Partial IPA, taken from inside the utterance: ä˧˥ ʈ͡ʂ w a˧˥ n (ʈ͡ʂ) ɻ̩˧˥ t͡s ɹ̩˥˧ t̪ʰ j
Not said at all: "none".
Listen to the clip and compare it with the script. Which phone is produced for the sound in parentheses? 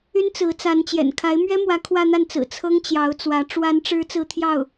ʈ͡ʂ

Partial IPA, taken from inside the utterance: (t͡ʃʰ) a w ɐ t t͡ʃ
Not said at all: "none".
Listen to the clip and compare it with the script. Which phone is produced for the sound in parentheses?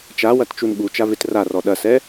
t͡ʃ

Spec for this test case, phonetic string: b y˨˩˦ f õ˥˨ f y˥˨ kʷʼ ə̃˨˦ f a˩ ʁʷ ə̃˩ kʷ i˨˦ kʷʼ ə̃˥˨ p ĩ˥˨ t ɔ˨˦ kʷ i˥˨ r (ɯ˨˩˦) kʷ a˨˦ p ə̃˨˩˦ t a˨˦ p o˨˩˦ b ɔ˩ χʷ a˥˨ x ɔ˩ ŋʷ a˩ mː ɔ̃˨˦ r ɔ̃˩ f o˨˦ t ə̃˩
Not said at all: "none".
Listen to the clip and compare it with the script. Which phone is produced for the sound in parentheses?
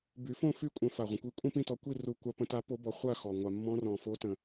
u˨˩˦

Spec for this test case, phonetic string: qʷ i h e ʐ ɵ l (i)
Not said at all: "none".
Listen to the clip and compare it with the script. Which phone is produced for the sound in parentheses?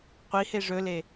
e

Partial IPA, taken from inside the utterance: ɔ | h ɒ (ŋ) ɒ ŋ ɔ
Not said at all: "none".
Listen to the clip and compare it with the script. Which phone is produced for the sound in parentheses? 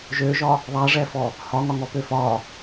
ŋ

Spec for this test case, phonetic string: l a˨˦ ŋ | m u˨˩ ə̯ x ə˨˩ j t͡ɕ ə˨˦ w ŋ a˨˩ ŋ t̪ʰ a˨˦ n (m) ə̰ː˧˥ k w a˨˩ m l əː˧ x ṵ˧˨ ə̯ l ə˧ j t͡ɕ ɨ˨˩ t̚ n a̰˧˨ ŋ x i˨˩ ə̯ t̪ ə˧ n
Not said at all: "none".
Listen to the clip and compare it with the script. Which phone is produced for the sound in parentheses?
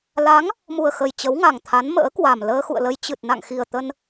m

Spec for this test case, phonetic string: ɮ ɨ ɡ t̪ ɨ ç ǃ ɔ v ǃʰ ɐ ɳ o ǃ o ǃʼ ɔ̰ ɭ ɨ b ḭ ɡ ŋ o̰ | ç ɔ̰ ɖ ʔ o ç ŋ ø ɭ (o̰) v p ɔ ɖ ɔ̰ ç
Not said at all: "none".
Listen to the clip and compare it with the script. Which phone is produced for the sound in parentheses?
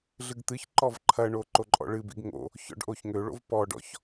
o̰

